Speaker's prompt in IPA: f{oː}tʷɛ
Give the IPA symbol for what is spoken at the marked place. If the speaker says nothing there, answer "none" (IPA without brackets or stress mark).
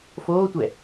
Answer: oː